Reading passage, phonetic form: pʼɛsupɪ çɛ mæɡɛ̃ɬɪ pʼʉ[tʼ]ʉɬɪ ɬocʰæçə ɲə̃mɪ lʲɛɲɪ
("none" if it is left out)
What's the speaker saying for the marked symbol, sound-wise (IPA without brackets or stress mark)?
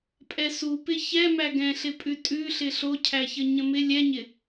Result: tʼ